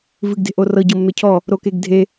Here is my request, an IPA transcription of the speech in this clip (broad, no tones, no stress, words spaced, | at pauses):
vɨɡde̤ʔorɤ ɟɤmːecʰɔ | ɾokeɡdʱe